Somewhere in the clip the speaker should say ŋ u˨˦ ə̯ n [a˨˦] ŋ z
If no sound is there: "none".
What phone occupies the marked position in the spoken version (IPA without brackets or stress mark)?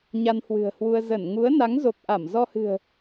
a˨˦